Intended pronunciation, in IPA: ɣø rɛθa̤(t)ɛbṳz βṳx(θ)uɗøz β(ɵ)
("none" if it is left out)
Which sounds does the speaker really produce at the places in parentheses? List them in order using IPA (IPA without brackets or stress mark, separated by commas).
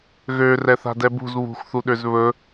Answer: d, θ, ɵ